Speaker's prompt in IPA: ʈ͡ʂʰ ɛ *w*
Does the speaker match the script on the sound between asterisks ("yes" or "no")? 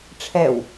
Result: yes